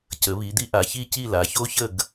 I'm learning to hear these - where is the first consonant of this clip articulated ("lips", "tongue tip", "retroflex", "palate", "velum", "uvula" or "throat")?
palate